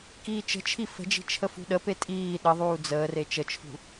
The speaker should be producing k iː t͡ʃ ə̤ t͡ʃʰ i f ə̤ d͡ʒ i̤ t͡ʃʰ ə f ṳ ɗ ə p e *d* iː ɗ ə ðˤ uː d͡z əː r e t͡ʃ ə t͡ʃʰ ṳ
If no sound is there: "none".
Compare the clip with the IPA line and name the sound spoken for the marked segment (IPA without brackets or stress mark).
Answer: tʼ